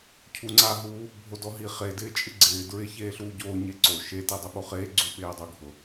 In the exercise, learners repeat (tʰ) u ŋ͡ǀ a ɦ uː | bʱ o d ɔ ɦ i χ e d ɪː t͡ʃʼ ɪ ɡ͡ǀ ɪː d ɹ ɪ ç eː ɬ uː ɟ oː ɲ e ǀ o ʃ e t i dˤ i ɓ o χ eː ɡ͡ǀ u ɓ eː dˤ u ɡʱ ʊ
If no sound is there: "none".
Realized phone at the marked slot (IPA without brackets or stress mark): cʰ